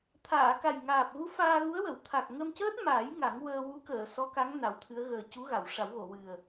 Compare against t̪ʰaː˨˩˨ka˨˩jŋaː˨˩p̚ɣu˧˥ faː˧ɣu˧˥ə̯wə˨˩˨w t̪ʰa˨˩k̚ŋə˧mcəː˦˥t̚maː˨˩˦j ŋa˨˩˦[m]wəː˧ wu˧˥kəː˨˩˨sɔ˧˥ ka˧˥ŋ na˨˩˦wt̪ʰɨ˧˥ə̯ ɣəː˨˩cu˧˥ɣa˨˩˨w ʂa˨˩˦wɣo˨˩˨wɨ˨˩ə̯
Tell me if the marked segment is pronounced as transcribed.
no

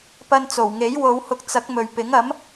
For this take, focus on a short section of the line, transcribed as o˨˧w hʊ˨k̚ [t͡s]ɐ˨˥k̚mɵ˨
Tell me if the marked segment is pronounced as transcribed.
yes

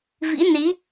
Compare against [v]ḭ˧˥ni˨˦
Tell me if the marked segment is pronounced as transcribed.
yes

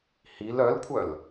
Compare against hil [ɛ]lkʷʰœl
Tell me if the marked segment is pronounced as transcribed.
no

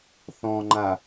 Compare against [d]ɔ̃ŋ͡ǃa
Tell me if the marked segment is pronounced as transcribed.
no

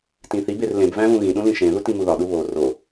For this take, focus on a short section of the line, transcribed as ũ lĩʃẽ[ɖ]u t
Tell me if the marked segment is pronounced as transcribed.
no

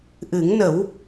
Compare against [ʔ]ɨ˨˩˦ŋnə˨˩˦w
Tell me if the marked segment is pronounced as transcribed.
yes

